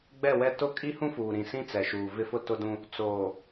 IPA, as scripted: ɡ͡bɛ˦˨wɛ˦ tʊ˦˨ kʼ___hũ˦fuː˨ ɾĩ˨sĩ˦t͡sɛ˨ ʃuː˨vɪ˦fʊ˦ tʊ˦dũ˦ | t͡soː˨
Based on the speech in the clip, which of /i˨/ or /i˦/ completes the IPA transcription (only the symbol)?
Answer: i˦